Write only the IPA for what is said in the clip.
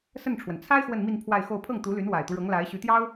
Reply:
s ə˥˩ n ʈ͡ʂʰ w ə˩ n t͡sʰ a˥ ɪ̯ x w ə˥˧ n m i˥˧ n pʰ w a˥˧ ɪ̯ x o˥˧ ʊ̯ pʰ ɤ˥˩ ŋ t̪ u˧˥ l y˧˥ n w a˨˩ ɪ̯ t̪ u˦ ɻ ɤ˧˥ ŋ l a˧˥ ɪ̯ ɕ y˧˥ t̪ j ɑ˥ ʊ̯

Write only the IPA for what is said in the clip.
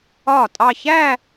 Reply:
ɒ˥˩ tʼ ɑ˥˧ ç æ˥˧

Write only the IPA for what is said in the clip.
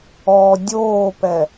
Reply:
ɔ dʲ oː p ɛ

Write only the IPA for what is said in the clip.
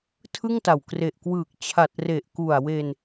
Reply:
tʰ ɯ˥˩ ŋ t a˨˩ w k r e˨˩ ʔ k w ɯː˨˩ k̚ t͡ɕʰ a˨˩ t̚ r e˨˩ ʔ k u˨˩ a̯ w e˧ n

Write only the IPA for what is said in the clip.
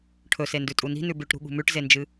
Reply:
ʈʰ ɵ s e n d ʉ tʼ u n i̤ n ʉ b ʉ ʈ ɾ ṳ ɠ ṳ m ʉ ʈ z e n d͡ʒ ɨ

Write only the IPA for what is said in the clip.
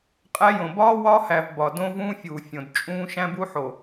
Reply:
qʼ æ˦ j õ˨ b ɒː˦ w ɒː˦ h æ˨ v b ɒ˨ d õ˦ v ũː˦ fʲ uː˨ fʲ õ˨ d t͡ʃʼ ũː˦ ʃ æ̃˦ b u˦ ħ o˨

